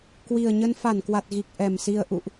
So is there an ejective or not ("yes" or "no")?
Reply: no